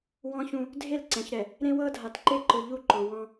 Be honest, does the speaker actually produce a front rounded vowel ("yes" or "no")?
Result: no